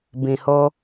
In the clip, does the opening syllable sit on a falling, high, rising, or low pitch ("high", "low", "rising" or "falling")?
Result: low